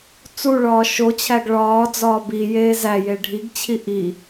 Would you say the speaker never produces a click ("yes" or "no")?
yes